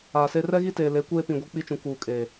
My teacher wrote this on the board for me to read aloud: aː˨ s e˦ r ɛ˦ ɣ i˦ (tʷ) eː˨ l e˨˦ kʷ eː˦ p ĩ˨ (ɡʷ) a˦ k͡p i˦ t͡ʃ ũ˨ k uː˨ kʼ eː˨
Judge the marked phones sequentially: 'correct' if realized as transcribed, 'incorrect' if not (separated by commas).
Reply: incorrect, correct